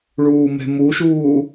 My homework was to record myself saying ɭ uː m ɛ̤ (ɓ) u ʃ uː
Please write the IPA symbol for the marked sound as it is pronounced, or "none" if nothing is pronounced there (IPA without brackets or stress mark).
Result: m